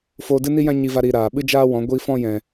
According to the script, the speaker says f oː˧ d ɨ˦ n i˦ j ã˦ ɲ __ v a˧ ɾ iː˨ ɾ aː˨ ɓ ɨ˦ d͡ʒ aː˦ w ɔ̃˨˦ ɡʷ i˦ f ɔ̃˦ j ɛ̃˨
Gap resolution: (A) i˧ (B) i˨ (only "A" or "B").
A